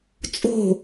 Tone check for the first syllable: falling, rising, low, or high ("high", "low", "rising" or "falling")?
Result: falling